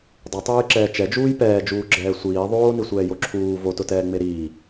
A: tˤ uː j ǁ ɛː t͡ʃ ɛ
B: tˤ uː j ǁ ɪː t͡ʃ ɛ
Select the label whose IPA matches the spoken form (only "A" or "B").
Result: A